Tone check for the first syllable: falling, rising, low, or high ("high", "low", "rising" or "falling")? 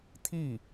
falling